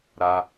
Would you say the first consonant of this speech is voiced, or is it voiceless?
voiced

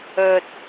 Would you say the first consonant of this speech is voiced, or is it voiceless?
voiceless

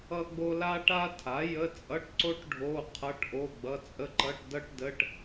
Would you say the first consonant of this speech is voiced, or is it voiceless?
voiced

